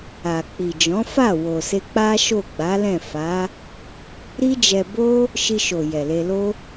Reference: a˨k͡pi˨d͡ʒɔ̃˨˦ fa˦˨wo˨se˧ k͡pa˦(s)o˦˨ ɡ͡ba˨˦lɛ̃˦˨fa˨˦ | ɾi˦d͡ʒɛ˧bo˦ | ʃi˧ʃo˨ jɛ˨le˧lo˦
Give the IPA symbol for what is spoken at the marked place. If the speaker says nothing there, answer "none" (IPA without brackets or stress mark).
ʃ